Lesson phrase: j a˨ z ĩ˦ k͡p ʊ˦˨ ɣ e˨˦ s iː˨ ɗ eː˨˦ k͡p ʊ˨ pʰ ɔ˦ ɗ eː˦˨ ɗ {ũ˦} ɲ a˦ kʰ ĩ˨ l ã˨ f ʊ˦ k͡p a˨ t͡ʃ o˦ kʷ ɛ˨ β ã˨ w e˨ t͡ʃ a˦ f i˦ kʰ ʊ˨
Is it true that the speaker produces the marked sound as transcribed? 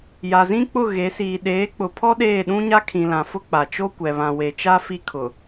yes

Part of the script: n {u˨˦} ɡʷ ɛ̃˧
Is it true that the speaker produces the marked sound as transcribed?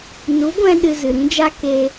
yes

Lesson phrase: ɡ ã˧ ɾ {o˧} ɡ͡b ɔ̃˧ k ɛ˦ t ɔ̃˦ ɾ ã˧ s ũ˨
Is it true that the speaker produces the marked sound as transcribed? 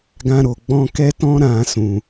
no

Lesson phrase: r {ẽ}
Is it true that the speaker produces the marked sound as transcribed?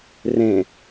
yes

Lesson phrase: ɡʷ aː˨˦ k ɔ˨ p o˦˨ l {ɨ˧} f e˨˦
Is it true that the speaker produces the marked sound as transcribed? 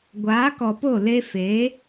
no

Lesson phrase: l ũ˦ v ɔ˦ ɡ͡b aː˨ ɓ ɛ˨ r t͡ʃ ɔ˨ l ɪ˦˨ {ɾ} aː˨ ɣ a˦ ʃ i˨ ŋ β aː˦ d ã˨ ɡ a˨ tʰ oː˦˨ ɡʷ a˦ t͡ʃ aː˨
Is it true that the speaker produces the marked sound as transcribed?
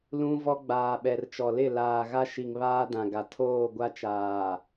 no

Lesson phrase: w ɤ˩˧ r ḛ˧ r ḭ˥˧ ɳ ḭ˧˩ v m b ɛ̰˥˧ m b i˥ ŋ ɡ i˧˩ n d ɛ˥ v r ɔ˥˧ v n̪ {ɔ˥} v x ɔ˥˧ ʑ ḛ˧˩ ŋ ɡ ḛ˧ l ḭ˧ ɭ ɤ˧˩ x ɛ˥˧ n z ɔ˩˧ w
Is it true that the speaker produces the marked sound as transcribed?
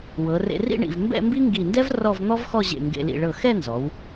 yes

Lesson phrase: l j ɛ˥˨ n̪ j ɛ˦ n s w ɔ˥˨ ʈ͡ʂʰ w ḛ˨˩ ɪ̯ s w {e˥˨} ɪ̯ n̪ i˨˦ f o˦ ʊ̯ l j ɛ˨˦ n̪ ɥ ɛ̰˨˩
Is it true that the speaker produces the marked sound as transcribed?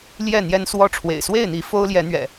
yes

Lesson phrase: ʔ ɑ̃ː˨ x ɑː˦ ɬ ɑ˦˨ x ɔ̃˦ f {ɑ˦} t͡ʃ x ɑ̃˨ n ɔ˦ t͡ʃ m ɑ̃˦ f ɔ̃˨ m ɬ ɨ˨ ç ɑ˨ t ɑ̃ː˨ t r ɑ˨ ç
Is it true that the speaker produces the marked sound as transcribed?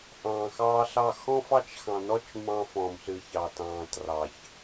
yes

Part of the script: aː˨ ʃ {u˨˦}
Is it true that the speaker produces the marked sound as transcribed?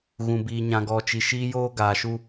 no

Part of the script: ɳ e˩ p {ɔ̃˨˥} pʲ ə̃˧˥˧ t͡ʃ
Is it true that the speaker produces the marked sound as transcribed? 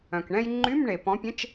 yes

